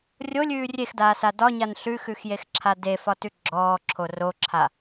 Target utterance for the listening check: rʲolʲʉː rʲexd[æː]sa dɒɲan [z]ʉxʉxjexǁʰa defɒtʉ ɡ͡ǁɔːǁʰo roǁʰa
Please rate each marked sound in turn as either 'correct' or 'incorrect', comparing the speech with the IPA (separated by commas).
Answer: incorrect, incorrect